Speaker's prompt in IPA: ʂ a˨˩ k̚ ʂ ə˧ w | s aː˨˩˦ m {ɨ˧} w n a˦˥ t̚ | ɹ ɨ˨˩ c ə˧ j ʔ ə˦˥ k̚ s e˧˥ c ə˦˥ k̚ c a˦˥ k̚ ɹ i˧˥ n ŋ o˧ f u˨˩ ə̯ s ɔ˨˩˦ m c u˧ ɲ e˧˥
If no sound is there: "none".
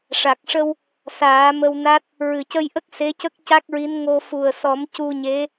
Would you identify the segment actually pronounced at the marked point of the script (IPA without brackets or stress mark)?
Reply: ə˧